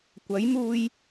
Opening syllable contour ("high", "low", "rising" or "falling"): rising